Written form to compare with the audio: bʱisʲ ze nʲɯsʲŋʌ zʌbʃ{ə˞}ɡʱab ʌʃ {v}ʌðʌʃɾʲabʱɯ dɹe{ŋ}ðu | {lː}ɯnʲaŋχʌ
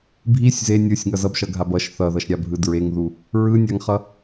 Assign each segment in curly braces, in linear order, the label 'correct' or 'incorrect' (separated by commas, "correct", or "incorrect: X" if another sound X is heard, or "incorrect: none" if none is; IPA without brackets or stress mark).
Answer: incorrect: ʌ, incorrect: θ, correct, incorrect: ɹ